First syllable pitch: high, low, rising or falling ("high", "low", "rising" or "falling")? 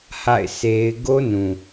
falling